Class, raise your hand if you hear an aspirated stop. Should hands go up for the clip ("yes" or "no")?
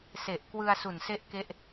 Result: no